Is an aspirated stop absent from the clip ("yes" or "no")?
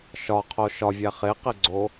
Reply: no